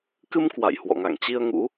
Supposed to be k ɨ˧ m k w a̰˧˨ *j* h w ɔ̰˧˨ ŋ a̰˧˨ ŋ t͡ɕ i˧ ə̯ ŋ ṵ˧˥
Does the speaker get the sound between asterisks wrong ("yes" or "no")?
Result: no